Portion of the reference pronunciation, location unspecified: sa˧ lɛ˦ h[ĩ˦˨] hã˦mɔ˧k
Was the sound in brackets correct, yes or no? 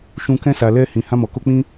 no